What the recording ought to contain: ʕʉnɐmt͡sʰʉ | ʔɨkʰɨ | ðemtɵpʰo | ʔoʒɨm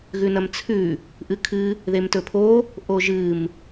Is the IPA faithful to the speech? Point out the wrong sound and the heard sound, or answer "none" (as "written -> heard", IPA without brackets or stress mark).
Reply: ʕ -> ɣ